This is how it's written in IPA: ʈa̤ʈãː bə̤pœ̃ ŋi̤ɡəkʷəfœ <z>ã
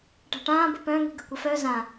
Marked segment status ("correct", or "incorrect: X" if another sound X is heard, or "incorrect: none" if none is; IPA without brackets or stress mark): correct